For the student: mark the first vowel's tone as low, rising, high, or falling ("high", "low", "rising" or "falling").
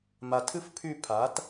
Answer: low